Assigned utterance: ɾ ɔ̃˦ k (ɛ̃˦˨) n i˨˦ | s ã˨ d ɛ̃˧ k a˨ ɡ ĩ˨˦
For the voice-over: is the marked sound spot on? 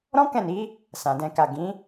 yes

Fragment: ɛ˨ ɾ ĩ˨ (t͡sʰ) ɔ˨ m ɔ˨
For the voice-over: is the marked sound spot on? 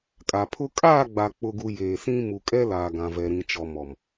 no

